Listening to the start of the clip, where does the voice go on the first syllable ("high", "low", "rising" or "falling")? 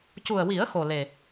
low